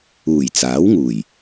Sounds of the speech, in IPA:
uː˨˩ j t͡s aː˨˥ w ŋ uː˨˩ j

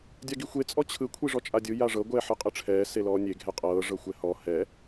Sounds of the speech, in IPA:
dʲ a ɡ i xʷ e t͡sʼ ɔ t͡ɕʰ ɯ kʷʰ i ʐ ɔ t͡ʃʼ a dʲ ɯ j a ʐ ɤ ɡʷ ɛː ħ ɯ qʼ ɯ ʈ͡ʂʰ ɛː s e l ɔː nʲ e ɡʱ ɛ qʼ ɤː ʐ ɤ xʷ ɛ h ɔ h ɛ

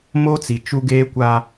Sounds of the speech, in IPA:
m o˦ t͡s i˨ t͡ʃ u˦ ɡ eː˦ kʷ a˦

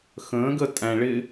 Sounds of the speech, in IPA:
x ə̃ː ɡ ə tʼ æ̃ ɭ ɪ

